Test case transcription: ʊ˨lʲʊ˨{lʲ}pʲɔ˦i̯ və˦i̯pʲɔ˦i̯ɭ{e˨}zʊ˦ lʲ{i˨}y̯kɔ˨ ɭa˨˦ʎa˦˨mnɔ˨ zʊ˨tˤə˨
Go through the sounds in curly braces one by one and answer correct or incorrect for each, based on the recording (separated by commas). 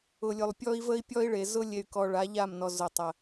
incorrect, correct, incorrect